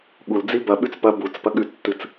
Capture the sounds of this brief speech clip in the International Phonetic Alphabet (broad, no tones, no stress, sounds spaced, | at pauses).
ɠ u l d͡z i b ɐ ɓ ʉ t͡s p ɐ b u t͡s p ɐ ɠ ʉ tː ɨ t͡s